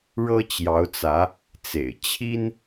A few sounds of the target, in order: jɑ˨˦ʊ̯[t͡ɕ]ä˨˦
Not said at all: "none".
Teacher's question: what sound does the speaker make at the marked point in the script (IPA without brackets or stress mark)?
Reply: t͡s